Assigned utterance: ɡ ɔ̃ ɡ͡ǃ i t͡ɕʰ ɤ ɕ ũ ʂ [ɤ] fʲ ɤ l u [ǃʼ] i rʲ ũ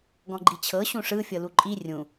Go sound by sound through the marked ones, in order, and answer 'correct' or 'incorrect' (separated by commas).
incorrect, correct